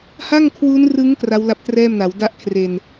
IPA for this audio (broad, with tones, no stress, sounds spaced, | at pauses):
h a˥˩ ŋ kʰ w uː˦˥ n r ɯ˦˥ ŋ k r a˦˥ w l a˦˥ p̚ t r ɛː˥˩ m n a˩˦ w d a˥˩ ʔ kʰ r e˧ n